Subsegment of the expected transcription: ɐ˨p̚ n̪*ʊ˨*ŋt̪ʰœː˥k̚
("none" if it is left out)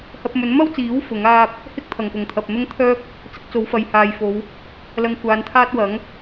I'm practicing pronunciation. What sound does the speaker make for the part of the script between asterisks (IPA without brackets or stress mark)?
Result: ʊ˥